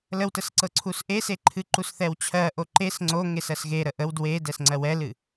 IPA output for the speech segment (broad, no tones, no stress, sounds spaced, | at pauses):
l ə w t ə s ǀ ɤ ǀʰ u s ʔ e s e ǃʰ ɨ ǃ u s θ ɛ w t͡ɕʰ ɜ ʔ o ǃ e s ŋ͡ǀ o ŋ e s ɜ s ɣ e ɾ ə ʔ ə w d w e d ɛ s ŋ͡ǀ ɜ w ɛ l ɨ